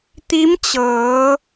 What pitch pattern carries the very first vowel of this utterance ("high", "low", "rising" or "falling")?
rising